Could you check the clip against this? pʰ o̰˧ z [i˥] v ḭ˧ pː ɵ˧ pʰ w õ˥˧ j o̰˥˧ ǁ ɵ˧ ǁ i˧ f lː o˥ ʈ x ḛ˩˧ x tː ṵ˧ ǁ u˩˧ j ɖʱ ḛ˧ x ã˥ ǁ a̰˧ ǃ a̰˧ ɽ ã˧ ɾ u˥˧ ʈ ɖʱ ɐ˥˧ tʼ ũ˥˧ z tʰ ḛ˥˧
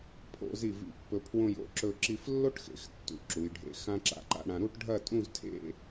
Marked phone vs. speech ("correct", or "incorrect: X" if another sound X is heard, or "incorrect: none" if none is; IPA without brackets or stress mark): incorrect: i˧˩